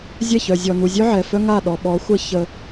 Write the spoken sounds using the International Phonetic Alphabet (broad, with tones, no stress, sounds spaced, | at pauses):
zʲ ɛ˦˨ ç œ˨ zʲ ɔ˨ n u˨ zʲ œ˦ ʕ ɛ˨ f œ˦ ŋ a˦˨ ɗ ɔ˨ ɓ ɔ˨˦ xʷ ə˦ ç ə˦